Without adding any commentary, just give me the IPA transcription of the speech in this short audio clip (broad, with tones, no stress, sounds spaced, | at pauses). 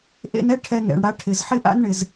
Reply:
ʔ ḛ˧ n ɛ˥ ʈʰ ɛ˧ ŋ ɛ̰˩ ɳ ɽ a˧ ʈʰ ɪ˩ z ħ ɪ˥ ʔ a̰˥ n ɳ ɪ˩ z